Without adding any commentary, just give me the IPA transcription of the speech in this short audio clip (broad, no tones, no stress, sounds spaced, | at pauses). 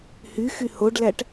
h y x y h o ɖ l æ ʈ